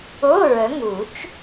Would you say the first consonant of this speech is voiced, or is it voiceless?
voiced